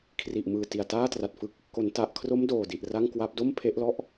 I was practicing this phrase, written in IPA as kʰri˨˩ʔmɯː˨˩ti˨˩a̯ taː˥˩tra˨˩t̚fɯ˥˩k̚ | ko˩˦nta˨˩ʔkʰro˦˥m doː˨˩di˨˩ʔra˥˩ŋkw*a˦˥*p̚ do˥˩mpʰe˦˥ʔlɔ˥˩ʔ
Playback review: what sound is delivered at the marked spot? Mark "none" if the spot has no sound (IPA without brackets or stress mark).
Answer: a˦˥